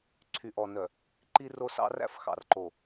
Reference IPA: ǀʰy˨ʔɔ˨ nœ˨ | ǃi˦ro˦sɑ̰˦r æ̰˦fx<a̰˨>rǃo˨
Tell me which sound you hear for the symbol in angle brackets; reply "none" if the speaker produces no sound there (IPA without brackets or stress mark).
ɑ̰˨